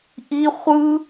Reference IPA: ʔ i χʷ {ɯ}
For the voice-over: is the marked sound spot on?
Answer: yes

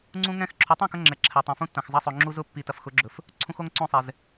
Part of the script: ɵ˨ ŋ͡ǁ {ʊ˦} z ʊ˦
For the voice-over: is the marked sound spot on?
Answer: no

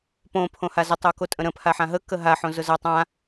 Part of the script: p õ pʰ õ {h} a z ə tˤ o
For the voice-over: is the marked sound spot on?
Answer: yes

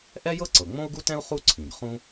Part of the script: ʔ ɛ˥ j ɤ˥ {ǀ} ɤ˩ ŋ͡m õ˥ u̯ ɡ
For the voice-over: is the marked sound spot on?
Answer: yes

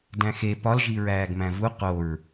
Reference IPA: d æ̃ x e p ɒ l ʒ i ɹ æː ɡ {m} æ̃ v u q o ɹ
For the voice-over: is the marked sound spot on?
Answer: yes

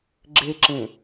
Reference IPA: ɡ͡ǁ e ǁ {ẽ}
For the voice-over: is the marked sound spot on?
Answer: yes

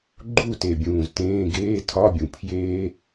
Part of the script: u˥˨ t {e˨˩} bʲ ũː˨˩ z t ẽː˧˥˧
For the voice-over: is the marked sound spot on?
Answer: yes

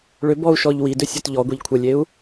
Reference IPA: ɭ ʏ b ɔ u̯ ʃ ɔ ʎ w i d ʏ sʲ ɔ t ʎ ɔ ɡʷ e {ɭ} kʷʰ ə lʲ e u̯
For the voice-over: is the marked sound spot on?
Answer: no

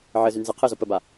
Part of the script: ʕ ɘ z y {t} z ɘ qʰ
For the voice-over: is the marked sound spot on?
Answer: no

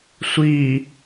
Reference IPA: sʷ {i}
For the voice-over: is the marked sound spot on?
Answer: yes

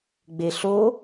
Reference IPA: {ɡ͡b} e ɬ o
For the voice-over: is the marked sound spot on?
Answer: yes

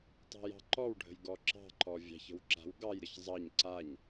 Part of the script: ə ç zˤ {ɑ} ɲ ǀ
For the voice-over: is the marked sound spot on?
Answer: yes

